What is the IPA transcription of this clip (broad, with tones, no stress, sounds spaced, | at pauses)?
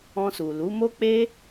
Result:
ɔ̃˧ s u˨ l u˨˦ m o˦ k͡p e˦